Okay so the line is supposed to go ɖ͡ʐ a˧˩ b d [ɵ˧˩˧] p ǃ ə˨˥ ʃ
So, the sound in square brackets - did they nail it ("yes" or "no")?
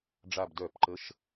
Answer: no